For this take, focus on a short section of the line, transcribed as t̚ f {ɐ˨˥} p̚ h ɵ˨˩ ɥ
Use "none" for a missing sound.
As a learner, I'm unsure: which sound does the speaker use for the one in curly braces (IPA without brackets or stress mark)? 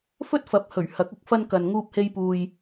ɐ˨˥